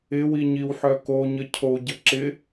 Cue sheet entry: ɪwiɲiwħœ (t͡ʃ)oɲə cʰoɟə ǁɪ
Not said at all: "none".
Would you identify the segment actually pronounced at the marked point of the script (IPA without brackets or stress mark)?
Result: k